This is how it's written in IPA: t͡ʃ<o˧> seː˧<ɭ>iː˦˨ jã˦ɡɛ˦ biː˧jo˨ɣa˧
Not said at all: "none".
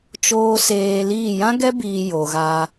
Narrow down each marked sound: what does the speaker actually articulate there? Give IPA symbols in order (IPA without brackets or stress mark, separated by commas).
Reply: oː˧, l